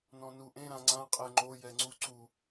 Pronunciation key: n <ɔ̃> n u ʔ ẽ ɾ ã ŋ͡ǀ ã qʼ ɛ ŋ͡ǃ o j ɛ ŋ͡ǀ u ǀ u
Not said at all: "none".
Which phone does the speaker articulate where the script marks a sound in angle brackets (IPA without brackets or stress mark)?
ɔ̃